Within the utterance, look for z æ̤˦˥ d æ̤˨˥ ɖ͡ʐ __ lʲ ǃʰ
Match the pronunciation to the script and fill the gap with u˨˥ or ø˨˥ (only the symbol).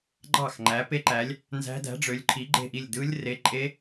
ø˨˥